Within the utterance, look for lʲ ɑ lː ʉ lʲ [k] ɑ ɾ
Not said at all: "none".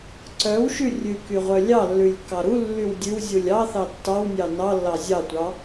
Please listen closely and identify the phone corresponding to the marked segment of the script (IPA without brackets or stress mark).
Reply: k